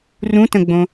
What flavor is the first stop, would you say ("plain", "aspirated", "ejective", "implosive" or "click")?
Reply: plain